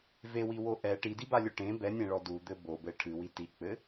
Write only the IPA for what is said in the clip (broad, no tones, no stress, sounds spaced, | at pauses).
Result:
v e w i w o ʔ ɛ ʈ i d i b a lʲ o ʈ ẽ b ɛ nʲ ẽ ɭ ɔ d u d̪ ɘ b o b ɘ ʈʰ ɨ w i t i k͡p ɘ